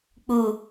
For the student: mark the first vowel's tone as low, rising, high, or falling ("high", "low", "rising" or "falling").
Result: low